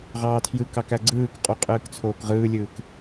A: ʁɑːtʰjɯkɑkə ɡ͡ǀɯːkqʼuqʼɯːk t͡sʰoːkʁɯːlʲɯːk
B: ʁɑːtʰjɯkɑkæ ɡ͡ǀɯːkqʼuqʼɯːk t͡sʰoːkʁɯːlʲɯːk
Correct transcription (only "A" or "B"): B